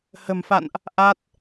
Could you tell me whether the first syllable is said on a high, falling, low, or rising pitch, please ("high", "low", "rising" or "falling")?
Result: low